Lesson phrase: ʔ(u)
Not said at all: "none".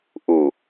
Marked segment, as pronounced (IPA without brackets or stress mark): u